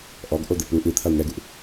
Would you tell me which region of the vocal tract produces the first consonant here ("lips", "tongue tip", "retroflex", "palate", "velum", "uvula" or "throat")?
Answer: throat